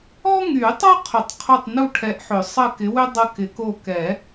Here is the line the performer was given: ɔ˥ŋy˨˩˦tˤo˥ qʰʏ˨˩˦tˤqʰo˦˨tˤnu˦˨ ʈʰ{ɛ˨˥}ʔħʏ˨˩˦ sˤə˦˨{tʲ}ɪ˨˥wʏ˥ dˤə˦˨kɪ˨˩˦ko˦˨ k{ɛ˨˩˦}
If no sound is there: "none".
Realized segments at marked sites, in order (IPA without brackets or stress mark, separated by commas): ɛ˨˥, k, ɛ˨˩˦